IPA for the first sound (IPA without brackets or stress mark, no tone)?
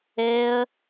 ɛ